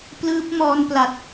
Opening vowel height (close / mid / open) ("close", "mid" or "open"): close